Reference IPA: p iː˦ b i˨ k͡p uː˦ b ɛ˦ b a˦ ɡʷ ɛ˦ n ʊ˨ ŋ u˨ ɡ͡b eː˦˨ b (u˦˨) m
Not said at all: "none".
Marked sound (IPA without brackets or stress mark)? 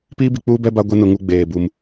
u˦